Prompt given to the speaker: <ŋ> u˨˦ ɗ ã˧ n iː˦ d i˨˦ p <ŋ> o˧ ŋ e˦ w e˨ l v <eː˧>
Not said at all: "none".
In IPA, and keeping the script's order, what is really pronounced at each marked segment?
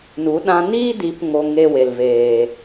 n, ŋ, eː˨

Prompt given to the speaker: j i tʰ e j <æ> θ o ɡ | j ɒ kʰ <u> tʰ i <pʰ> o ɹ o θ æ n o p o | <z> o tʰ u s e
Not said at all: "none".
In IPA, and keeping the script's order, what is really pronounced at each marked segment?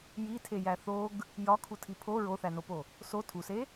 æ, u, pʰ, s

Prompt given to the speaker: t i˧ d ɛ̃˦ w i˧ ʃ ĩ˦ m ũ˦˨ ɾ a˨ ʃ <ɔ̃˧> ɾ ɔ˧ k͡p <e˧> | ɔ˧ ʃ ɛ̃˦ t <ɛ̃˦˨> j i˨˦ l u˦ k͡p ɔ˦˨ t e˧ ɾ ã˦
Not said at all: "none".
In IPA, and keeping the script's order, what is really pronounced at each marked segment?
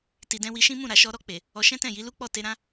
ɔ˧, e˨, ɛ̃˦˨

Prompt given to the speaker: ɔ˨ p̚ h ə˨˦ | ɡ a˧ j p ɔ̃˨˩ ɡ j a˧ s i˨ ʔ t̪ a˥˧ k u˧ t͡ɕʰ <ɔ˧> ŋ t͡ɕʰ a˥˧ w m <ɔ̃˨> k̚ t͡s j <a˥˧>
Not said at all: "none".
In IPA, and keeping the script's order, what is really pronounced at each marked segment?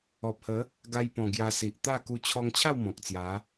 ɔ˧, ɔ̃˨, a˨˦

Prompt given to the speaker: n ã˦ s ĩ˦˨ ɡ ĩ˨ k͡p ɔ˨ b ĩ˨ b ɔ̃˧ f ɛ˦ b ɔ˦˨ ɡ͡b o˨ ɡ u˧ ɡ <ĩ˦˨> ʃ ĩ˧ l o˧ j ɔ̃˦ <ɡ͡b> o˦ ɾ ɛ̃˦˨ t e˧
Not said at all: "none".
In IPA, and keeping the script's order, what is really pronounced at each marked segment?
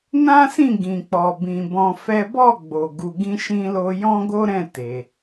ĩ˧, ɡ

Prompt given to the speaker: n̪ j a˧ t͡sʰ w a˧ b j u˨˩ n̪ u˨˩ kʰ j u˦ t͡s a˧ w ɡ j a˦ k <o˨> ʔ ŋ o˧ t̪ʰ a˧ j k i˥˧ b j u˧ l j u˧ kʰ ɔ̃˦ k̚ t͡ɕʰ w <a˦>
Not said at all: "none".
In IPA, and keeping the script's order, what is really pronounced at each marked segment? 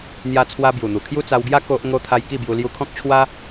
o˦, a˦

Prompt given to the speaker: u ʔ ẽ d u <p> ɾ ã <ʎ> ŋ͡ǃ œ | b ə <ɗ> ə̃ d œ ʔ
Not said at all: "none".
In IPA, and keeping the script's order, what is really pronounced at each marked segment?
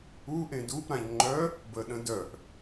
p, ʎ, ɗ

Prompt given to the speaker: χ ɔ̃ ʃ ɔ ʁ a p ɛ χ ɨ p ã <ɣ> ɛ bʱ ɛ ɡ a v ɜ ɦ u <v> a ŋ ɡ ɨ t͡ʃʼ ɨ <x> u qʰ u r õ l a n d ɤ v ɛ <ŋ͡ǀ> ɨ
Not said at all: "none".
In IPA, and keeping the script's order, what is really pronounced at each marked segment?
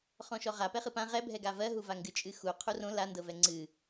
ʁ, v, x, ŋ͡ǀ

